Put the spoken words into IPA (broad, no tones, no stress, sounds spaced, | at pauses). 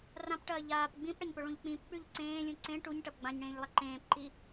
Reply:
r ã p ʈ ɐː ʎ aː p ɡ͡b ĩ p ɽ ɐ ɲ p ɵ ɭ ũ ʎ k͡p ĩ p k͡p ʉ ʎ ǀ ẽː lʲ ũ ǀ ẽ ʈ u ɲ ʈ ɐ p ɡ͡b ã ɲ ɽ ẽː ʎ lˠ ɐ ǃ ẽː p ǃ i